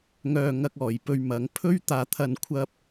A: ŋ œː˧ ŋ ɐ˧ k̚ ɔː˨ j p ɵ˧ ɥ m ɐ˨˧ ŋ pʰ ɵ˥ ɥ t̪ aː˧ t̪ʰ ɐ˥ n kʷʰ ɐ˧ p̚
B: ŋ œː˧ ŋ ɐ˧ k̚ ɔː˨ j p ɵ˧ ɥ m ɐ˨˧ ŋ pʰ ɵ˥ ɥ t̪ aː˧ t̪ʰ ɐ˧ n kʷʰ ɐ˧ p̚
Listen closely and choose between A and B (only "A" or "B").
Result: B